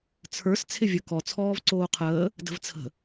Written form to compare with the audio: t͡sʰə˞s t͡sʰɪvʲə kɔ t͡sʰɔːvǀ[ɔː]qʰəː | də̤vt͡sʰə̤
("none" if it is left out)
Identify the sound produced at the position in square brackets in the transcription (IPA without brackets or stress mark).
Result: oː